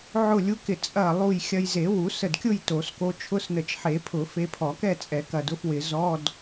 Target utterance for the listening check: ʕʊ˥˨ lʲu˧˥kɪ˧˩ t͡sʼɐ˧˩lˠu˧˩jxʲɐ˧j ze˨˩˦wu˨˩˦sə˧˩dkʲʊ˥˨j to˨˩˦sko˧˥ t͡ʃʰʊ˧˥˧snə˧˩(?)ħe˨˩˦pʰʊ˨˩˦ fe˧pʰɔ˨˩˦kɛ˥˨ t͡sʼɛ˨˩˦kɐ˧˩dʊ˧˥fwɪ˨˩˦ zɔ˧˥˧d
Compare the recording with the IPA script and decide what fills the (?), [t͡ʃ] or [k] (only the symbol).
t͡ʃ